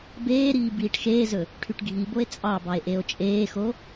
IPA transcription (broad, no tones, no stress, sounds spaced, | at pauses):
b eː ɾ iː b iː ʈ x eː z ɵ | ʈʰ y ʈ ɡʱ i b o e̯ t͡sʼ ɑ b ɑ e̯ ʔ e o̯ t͡ʃʼ eː x o